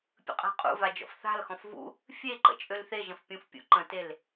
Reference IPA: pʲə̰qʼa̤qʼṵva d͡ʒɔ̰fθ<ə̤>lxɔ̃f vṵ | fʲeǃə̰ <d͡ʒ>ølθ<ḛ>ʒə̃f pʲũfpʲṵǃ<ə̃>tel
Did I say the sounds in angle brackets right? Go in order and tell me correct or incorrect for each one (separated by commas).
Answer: incorrect, incorrect, incorrect, correct